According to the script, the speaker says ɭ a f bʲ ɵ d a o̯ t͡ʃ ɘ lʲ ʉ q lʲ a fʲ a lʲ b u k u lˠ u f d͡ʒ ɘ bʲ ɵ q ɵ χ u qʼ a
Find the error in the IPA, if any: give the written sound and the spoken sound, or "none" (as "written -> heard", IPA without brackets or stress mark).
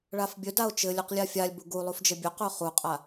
k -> ɡ